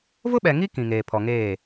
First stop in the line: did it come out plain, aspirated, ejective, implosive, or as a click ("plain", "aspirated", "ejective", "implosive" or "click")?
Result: implosive